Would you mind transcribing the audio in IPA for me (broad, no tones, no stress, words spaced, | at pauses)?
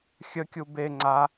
xʲəkʲu be ŋ͡ǀa